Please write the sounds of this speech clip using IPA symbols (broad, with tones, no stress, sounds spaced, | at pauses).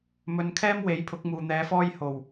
m ɵ˨˧ n kʰ ɛː˥ m w e˨˥ j pʰ ʊ˨˥ k̚ m uː˨ n̪ ɛː˧ f ɔː˥ j h o˨˩ w